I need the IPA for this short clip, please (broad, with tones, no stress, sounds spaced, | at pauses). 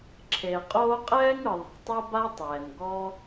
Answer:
ǁʰ e˩ qʼ oː˥ qʼ ɛː˥ ŋ ɯ˩ ðˤ a̤˩ tˤ e˥ b a˥ tˤ ɛː˩ n ɡ ɔ˥